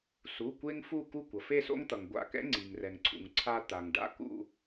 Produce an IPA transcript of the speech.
su˩˧˩kʷe˦ŋ fu˦˨ ku˦˨ kʷʌ˩fe˦˨so̰˦ŋt̪ʌ˩ŋ ɡʷa̰˦˨ kɛ̰˦ŋ͡ǀi˩ŋrɛ˩ŋǀʰṵ˩ŋ ǀʰa˦ t̪a˩ŋ ɖa̰˦kṵ˦˨

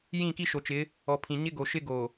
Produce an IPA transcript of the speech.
jĩ˦˨ki˦ʃo˨t͡ʃɪ˨˦ | ɔ˨pʰĩ˨ɲɪ˦ ɡo˨ʃɪ˦ ɡo˨

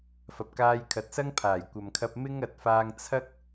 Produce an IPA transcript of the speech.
fɐ˨p̚kaː˧jkʰɐ˨t̚sɐ˥ŋ pʰaː˨˩jkʷɐ˨mkʰɐ˧p̚ mɪ˧ŋ ɐ˨˥t̚faː˧ŋ t͡sʰɐ˥k̚

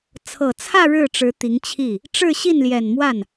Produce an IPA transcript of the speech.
t͡sʰɤ˨˩t͡sʰä˥˧ ɻɻ̩˥˩ʈ͡ʂɻ̩˧˥ t̪i˧˥ŋt͡ɕʰi˥˩ | ʈ͡ʂɻ̩˥˧ ɕi˥˩nljɛ˨˩nmwa˥˩n

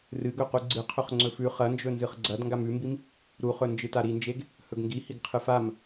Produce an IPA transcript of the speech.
rɨɡɵ quɡ͡ǀɨ qʰɵχŋ͡ǀɵfʉ χɐnd͡ʒɵ nzɨχɡ͡ǀɐd ŋɡamʉmbim | ɾuχɵ nd͡ʒɨtaɾind͡ʒeɡ | hɵɡŋɡihiɡ qʰɨfam

